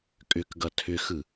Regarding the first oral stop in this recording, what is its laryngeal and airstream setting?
ejective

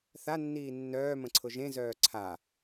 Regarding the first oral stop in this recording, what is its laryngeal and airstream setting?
click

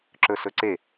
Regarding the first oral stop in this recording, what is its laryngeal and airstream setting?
click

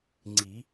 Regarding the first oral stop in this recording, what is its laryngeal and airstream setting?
click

